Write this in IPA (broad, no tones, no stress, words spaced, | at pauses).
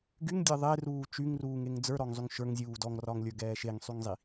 ɡyŋdʲe ðˤeruː t͡ʃyŋruːŋeŋ d͡zə˞ɾɔŋzˤyŋ ʃə˞ŋzʲuː dɔŋrɒŋlʲə˞ɡɛː ʃeŋsˤyŋzˤi